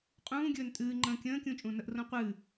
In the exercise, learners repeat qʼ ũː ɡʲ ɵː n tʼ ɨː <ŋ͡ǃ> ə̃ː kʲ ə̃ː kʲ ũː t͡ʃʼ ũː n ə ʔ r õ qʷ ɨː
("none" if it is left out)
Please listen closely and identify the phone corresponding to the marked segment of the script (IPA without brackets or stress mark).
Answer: ŋ͡ǃ